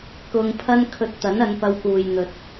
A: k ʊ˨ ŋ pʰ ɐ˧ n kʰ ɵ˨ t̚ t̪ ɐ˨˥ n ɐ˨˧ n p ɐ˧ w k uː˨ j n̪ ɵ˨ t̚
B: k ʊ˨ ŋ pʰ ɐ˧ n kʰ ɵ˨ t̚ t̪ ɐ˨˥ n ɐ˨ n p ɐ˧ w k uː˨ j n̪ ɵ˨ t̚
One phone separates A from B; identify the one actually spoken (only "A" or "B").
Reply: A